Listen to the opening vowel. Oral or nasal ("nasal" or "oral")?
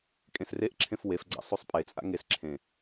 nasal